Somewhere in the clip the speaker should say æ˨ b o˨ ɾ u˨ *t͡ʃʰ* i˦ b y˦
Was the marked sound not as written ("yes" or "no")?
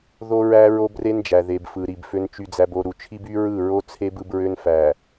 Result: no